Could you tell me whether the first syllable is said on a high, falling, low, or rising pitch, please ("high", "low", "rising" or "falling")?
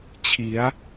rising